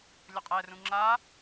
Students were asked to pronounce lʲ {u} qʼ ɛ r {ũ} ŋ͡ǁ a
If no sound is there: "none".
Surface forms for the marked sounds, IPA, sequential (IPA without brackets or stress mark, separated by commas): ʊ, ũ